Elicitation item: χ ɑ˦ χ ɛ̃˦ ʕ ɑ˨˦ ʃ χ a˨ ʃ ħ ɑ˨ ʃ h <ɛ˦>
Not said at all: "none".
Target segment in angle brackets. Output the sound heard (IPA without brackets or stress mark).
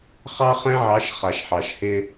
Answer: ɪ˦